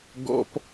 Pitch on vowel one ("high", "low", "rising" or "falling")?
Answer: high